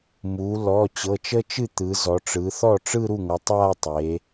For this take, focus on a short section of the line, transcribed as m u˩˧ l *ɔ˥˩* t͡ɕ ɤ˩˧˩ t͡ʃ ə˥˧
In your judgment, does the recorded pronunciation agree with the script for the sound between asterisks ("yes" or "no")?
no